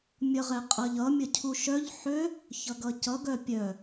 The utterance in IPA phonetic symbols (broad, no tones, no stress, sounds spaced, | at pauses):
mʲ ʌ ʁ ɛ qʼ ʌ ʎ ʌ mʲ ʌ cʰ u ʃ œ ʎ ħ ø | ç ʌ ɡ ʌ c ʌ ɡ œ pʲ œ